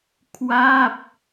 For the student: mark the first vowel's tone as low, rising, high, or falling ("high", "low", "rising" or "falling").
falling